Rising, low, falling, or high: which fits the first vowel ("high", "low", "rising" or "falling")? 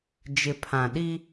low